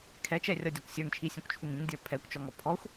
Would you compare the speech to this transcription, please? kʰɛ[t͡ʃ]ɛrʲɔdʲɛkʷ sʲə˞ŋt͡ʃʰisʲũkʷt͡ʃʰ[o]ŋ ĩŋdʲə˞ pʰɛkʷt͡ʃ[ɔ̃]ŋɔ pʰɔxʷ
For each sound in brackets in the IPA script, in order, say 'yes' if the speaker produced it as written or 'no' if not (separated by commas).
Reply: yes, no, no